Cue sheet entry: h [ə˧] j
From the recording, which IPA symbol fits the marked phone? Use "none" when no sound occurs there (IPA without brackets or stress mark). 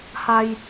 a˧